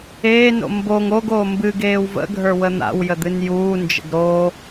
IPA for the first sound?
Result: eː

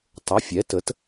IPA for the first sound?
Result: tˤ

